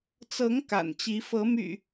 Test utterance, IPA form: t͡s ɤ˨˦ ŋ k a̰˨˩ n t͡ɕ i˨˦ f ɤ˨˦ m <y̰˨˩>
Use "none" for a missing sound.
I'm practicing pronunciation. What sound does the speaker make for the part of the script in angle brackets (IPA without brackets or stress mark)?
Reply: y̰˨˩